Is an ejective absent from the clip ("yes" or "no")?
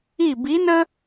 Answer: yes